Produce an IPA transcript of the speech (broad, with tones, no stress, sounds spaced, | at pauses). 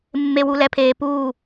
mː e˨ w u˨ l ɛ˨ pʰ eː˨ p uː˦˨